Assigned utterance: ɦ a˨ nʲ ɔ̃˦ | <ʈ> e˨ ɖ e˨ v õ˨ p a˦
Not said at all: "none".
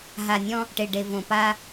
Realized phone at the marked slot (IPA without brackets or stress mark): ʈ